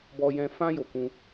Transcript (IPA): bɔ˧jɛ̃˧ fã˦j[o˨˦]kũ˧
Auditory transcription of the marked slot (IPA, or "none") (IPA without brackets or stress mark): o˧